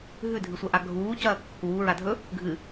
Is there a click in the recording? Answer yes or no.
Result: no